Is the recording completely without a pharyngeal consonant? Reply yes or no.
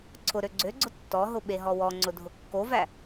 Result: yes